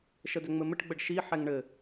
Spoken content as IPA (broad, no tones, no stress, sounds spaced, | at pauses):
ʃ ə d ʏ ŋ͡m ɘ m ɘ ʈ ɡ͡b ə ɖ ʃ i ħ ɛ ŋ ɳ ɘ